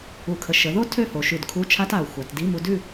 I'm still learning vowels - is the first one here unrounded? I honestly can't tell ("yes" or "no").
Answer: no